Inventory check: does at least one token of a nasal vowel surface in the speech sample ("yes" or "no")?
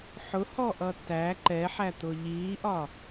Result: no